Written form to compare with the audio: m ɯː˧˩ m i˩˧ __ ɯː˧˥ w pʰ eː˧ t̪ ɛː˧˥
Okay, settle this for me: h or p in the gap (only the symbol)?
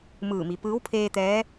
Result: p